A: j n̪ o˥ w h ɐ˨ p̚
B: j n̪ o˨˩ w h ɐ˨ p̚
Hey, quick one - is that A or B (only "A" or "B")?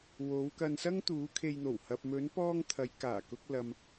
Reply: B